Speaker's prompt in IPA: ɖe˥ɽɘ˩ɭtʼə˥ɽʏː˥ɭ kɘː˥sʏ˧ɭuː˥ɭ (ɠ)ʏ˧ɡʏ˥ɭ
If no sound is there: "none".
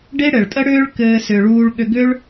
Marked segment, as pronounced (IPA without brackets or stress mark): ɠ